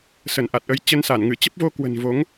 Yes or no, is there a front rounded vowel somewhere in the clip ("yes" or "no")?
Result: no